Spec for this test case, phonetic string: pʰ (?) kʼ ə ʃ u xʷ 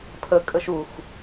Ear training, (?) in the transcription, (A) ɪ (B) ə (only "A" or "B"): B